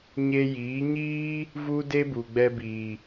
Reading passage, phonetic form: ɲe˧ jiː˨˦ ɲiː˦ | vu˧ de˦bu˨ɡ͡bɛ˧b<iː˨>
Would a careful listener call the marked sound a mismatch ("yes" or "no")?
no